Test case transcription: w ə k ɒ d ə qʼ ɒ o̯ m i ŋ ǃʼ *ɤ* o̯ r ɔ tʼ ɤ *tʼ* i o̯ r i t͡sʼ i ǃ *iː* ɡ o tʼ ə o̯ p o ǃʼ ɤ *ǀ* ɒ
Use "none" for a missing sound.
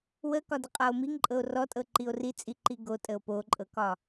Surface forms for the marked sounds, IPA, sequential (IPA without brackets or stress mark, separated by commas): ɤ, ǃ, i, k